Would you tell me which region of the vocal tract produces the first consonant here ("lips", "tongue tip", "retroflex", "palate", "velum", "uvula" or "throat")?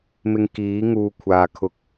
lips